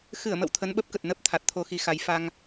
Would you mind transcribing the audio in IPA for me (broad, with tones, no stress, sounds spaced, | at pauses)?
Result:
x ɨ˧˩ ə̯ m ə̰˧˨ w t̪ʰ ə˨˦ n ɓ ə˦˥ p̚ k ə˨˩ t̚ n ə˦˥ p̚ t̪ʰ a˨˩ t̚ t̪ʰ o˧ x i˨˦ x a˨˦ j f a˧ ŋ